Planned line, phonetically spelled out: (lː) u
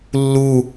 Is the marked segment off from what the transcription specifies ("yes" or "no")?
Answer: no